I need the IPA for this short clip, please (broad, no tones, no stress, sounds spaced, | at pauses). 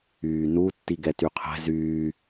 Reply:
yː n u tː i ɡ ɛ t y qʰ ɛ̤ z yː